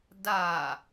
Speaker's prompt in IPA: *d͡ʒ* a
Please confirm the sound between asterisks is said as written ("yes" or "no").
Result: no